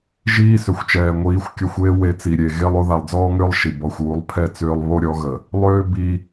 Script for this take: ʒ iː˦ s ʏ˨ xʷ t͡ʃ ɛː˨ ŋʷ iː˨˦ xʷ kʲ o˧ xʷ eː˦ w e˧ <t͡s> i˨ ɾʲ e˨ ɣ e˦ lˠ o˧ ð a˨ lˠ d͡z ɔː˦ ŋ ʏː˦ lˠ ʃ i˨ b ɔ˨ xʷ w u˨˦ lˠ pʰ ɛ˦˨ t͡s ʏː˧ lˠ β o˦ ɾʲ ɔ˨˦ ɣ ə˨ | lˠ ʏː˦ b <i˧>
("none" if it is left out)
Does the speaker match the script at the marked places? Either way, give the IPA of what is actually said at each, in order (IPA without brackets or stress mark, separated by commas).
t͡s, i˧